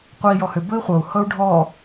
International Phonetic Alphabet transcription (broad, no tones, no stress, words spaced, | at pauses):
qʷəi̯jɔhʏ bɵi̯χʷɤu̯ hɤu̯ɖʱɔ